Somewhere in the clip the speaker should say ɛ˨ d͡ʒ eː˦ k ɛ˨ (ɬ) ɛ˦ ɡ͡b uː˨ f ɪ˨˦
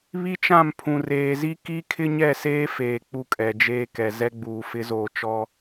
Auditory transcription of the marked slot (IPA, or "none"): z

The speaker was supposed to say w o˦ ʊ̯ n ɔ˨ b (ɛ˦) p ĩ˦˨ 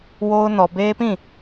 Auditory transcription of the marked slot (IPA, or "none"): e˦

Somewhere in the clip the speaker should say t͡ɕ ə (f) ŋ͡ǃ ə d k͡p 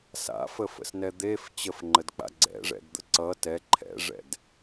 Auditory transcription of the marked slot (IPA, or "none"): f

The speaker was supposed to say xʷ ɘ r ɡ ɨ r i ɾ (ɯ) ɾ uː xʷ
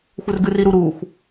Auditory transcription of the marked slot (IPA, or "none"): u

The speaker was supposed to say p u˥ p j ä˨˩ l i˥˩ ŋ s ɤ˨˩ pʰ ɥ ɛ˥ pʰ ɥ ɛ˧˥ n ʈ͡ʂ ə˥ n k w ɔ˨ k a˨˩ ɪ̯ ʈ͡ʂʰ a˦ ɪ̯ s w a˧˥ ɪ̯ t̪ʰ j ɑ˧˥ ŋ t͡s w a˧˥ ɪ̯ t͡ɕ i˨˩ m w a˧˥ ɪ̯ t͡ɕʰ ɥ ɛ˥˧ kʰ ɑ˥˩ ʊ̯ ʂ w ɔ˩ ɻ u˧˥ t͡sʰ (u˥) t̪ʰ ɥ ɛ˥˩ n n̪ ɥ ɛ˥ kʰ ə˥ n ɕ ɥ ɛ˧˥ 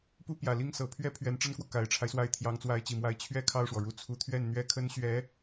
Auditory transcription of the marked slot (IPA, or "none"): u˧˥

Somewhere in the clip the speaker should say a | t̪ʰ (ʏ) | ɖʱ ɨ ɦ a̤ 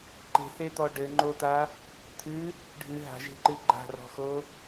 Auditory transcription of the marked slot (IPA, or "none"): ɨ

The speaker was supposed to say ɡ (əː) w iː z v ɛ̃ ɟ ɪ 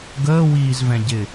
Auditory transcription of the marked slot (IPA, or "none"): əː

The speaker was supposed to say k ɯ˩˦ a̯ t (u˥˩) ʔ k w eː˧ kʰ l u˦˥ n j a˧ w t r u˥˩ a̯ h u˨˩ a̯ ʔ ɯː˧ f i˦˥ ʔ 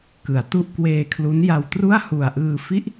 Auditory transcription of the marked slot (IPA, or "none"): u˥˩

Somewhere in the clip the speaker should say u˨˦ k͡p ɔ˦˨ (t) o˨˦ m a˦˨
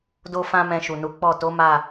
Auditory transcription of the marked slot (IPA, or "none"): t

